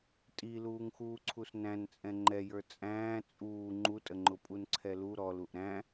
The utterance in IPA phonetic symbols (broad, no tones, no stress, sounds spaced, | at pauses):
tʼ i l uː ŋ x uː ǀʰ u s n æ̃ n t͡sʼ ɛ̃ ŋ͡ǃ ɛ j ə˞ t͡sʼ æ̃ː t͡sʼ uː ŋ͡ǃ u tʼ ə ŋ͡ǃ ʊ pʼ u n ǀʰ ɛ l u ɾ ɔ l u ʔ ɾ æ̃